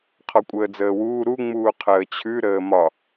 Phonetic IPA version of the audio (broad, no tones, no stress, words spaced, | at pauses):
qʰɔkʷʼəːd͡zəːwuː ɾuŋ͡muː qʰəːt͡ɕʰʉ ɾəːmɒ